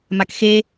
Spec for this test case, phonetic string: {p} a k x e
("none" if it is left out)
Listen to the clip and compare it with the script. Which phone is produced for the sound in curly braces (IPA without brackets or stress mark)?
m